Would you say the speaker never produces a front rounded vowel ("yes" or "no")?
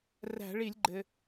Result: yes